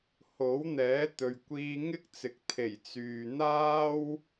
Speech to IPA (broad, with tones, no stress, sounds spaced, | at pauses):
h o˨˥ w n̪ ɛː˨˥ t̪ ɵ˨ ɥ kʷ iː˧ ŋ ɪ˥ k̚ t͡s ɪ˨˥ k̚ t̪ʰ e˨˩ j t͡s yː˨ n̪ aː˥ w